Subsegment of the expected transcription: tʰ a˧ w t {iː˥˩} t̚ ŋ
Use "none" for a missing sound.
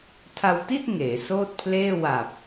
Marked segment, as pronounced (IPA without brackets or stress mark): i˥˩